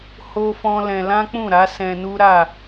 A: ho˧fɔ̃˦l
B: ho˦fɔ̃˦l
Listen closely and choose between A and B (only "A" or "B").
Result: B